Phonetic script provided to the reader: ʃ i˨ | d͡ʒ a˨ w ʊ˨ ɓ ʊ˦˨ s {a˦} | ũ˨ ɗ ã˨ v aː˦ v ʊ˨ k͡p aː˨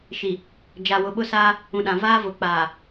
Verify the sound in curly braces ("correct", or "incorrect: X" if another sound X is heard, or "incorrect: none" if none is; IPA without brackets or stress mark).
incorrect: aː˦